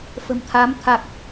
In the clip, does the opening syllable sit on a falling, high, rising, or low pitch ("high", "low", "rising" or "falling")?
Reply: low